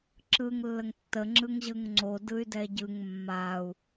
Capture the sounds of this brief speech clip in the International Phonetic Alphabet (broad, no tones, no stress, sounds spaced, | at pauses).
ǁ ɯ ŋ lː ə ŋ tː ə ŋ͡ǁ ɯ ŋ ʑ ɯ ŋ ŋ͡ǀ o d ɯ y̯ d ɛ ɟ ɯ ŋ mː a u̯